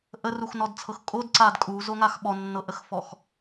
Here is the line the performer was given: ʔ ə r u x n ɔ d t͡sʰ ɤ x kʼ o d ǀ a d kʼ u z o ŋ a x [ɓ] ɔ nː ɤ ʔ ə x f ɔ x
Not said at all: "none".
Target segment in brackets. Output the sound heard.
ɓ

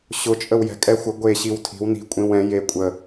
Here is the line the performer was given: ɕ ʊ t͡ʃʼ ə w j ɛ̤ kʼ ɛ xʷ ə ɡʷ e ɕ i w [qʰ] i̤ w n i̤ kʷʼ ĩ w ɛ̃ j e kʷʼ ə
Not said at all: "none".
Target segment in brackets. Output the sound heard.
tʰ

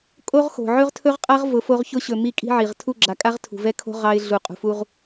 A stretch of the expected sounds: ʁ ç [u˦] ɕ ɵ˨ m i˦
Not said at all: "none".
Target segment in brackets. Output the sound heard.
ʊ˦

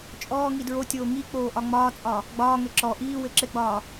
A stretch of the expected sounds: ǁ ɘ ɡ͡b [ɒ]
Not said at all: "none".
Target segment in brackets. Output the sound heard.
ɒː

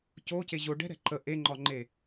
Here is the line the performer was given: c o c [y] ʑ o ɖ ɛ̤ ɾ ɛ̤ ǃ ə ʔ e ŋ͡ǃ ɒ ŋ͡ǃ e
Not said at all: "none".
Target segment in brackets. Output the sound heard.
e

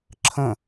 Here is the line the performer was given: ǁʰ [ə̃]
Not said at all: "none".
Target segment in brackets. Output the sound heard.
ə̃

